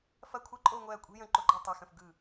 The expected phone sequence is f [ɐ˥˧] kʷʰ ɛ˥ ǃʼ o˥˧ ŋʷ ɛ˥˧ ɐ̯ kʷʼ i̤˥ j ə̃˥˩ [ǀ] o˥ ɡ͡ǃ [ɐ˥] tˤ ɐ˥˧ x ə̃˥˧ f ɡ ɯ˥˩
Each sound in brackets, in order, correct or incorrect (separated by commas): correct, incorrect, incorrect